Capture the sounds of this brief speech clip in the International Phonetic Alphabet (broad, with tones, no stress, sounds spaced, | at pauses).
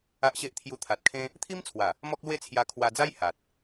a˦ ʔ ɕ e˦ ʔ t̪ʰ j u˧ t̪ʰ a˨ t̚ kʰ ẽ˦ | t̪ʰ i˦ m t͡sʰ w a˨˩ | m ɔ˦ k̚ l w e˥˧ t͡sʰ j a˧ kʰ w a˧ d͡z a˦ j h a˨ t̚